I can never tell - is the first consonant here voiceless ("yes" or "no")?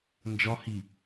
no